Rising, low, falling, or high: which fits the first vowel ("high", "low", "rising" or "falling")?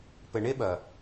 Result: low